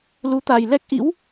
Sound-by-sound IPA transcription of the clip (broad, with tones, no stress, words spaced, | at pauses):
lu˨˦t̪a˨˩jlɛ˦˥k̚ ʔḭ˧˥w